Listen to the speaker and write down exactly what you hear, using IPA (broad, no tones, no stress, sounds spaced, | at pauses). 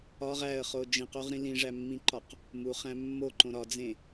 ɒ ʁ æ ə̯ χ o d͡ʒ ĩ q o ʁ ɾ ĩ l ĩ ʐ æ mː ĩ ǃ ɒ q | m u χ æ̃ mː o ǃ õ ɾ ɒ d͡z ẽ